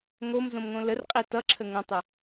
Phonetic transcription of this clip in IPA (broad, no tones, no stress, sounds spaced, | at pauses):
ŋ o m z õ m ŋ õ l ə r qʼ i t ʌ ǁʰ ə ŋ ə̃ tˤ ə